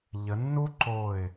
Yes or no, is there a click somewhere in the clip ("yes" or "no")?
yes